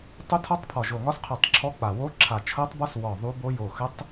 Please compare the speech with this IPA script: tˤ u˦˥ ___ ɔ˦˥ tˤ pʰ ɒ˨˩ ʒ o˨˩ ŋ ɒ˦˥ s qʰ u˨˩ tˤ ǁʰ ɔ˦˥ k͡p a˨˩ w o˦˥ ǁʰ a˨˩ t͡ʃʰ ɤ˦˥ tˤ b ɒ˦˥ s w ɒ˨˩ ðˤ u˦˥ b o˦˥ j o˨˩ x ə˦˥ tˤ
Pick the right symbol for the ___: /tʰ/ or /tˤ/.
tʰ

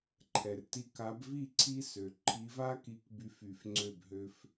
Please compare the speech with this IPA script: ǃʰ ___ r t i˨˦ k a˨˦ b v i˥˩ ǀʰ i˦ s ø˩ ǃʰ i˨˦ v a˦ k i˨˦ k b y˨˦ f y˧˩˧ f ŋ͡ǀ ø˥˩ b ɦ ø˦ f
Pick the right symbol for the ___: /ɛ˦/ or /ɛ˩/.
ɛ˩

